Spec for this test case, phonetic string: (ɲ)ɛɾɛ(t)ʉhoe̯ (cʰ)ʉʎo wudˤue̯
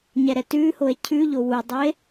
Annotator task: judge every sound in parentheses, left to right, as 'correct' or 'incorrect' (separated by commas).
correct, correct, correct